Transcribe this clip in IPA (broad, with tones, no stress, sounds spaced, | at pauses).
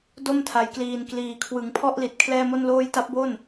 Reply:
d o˥˩ m tʰ a˩˦ j k l iː˨˩ n k l iː˩˦ kʰ w ɯ˨˩ ŋ pʰ ɔ˥˩ ʔ l i˨˩ t̚ kʰ l ɛː˥˩ m o˥˩ n l oː˥˩ j t a˦˥ p̚ b o˥˩ n